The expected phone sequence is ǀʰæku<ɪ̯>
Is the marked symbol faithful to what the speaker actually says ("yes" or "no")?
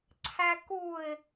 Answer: yes